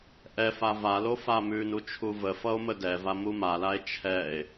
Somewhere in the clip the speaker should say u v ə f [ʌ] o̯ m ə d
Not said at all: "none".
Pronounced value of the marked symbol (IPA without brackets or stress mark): ʌ